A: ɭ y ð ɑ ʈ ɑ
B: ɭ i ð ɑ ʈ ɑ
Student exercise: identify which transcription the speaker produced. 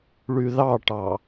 A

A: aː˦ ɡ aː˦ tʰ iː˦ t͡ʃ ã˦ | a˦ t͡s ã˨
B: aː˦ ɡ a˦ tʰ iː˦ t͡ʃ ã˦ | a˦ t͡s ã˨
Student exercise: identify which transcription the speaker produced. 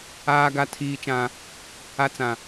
B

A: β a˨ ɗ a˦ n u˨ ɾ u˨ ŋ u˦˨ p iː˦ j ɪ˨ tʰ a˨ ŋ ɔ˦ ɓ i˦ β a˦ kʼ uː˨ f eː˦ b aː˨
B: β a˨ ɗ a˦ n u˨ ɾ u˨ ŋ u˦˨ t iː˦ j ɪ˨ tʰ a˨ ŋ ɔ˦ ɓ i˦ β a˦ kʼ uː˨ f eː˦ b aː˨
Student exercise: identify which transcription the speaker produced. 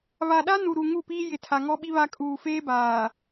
A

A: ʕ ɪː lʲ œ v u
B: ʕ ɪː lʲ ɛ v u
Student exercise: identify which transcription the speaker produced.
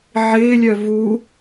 A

